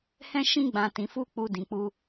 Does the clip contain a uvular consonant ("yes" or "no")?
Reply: no